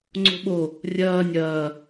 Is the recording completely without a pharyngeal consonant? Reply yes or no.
yes